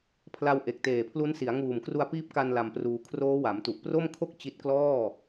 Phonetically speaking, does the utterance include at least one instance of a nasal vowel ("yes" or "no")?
no